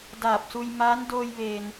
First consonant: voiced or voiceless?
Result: voiced